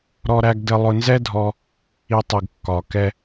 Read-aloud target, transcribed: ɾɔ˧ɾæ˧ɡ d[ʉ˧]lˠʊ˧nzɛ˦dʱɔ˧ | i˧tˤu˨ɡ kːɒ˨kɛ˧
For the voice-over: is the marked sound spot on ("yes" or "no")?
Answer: no